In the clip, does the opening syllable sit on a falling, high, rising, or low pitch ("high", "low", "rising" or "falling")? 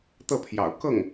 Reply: falling